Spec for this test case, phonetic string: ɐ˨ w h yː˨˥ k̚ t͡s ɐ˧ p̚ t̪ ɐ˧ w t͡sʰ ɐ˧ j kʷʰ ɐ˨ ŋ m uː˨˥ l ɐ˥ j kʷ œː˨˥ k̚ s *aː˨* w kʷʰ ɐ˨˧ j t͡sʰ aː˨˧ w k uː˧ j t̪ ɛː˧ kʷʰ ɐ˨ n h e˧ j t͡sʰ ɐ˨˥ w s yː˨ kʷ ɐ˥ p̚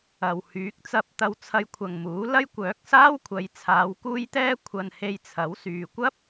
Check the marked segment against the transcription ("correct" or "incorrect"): incorrect